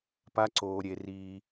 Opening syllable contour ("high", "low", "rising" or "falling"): high